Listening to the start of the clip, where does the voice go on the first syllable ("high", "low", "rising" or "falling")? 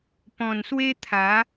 low